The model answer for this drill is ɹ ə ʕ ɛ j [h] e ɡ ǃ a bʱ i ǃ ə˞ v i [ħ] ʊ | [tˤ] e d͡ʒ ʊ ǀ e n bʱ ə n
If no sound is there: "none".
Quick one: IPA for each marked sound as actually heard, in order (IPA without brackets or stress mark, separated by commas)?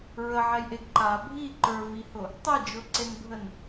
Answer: ʔ, h, tˤ